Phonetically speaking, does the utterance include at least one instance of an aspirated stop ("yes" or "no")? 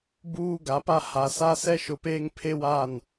yes